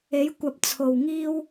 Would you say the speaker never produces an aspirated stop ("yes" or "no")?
no